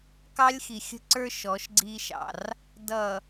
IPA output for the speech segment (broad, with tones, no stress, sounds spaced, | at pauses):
k ɑ˦ lʲ x i˨ xʲ ə̤˦ ǀ ə˞˦ ʃ ɔ˨˦ ʃ ɡ͡ǀ iː˦ ʃ ɑ̰˨ r | d ʌ˨